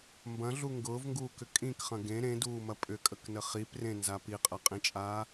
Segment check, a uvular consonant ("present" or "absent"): present